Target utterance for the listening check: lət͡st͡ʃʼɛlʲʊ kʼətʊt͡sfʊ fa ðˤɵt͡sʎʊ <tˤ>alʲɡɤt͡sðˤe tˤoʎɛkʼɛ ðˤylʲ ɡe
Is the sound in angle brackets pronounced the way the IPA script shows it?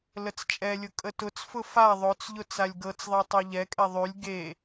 no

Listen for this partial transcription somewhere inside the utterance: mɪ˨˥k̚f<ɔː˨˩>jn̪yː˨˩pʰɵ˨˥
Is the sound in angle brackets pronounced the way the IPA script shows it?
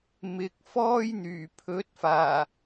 no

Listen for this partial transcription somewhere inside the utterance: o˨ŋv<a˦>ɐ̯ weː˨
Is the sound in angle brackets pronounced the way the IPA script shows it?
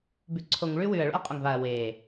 no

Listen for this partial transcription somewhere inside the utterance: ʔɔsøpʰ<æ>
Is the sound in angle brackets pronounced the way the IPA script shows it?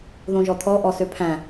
no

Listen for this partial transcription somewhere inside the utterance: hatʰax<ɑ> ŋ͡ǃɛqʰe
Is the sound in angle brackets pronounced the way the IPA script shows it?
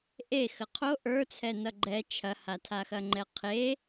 no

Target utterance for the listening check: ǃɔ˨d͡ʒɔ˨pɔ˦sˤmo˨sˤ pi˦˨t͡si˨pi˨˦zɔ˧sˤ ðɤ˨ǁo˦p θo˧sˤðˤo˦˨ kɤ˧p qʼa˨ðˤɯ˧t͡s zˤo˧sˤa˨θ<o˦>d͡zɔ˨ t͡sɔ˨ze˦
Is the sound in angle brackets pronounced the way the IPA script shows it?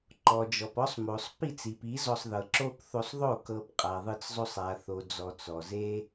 no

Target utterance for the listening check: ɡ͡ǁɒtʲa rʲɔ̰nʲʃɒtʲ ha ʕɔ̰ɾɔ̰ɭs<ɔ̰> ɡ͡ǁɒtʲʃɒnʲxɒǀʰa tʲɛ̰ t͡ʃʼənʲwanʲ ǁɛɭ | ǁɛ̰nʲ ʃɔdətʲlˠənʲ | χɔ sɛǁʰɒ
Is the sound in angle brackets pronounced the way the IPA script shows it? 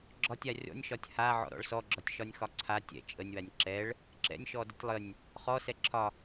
no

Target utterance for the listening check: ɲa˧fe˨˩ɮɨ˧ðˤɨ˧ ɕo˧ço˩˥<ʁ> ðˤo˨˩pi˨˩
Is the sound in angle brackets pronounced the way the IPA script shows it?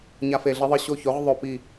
yes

